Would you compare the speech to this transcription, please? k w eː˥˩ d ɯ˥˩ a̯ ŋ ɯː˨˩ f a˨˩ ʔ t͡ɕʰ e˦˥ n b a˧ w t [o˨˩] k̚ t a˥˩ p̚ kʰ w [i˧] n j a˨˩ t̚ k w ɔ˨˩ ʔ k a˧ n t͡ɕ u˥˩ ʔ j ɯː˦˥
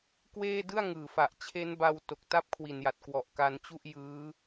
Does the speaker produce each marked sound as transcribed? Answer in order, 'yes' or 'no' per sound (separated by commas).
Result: yes, no